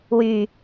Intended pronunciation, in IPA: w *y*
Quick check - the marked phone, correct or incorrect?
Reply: correct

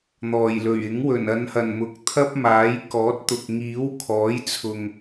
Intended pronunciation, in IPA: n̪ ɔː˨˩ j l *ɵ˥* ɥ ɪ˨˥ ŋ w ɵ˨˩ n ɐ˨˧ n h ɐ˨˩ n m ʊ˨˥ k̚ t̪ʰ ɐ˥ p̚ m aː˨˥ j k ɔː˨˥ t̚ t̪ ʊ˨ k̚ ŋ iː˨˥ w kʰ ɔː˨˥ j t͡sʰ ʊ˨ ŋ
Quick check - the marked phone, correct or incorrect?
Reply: incorrect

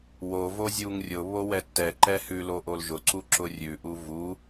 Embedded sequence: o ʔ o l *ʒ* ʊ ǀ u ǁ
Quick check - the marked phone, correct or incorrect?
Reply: correct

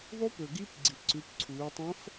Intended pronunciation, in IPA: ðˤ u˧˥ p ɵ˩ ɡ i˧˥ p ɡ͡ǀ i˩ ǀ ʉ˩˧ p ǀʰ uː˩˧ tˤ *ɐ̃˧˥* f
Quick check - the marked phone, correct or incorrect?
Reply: correct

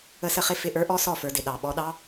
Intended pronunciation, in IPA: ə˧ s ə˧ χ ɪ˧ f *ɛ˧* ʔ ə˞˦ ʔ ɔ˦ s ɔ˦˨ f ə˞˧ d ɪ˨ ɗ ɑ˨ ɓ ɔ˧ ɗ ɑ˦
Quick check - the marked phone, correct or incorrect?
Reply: incorrect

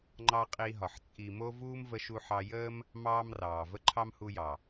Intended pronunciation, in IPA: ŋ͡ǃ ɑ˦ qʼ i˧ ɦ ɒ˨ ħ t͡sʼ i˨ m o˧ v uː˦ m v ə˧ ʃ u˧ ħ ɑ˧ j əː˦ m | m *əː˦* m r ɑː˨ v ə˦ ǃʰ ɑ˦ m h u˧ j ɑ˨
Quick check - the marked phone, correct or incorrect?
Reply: incorrect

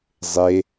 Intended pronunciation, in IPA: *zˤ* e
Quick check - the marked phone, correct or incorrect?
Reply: correct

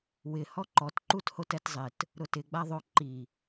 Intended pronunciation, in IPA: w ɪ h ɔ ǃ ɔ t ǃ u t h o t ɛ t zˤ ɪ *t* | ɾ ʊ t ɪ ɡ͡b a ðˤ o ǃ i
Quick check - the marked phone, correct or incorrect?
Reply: correct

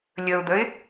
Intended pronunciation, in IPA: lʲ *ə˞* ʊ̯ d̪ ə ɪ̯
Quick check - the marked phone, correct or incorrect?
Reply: incorrect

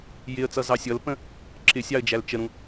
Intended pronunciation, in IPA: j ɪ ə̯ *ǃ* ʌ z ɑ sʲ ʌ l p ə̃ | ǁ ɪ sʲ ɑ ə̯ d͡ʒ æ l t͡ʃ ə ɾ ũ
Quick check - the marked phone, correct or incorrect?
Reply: incorrect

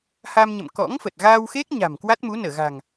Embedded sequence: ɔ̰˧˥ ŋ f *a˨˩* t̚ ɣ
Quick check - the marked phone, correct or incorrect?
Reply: incorrect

